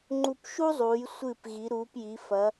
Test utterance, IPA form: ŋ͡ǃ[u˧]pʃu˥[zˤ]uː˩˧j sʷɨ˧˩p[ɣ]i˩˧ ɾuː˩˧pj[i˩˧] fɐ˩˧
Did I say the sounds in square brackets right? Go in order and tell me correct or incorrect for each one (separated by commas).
correct, correct, correct, correct